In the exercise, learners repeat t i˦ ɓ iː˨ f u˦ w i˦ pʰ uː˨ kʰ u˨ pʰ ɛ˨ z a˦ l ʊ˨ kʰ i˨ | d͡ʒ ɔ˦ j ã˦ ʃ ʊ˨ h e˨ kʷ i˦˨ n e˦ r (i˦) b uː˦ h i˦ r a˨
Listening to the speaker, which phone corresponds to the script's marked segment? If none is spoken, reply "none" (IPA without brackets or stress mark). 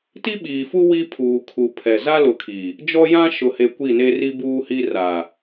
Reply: i˦